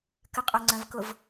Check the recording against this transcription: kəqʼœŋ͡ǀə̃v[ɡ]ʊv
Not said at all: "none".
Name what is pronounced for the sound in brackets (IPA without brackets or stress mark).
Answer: k